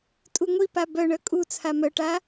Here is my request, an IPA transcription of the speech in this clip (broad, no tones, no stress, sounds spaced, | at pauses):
tʼ u ŋʷ i p a b œ ɳ œ kʼ u t͡sʰ a m œ ʈ a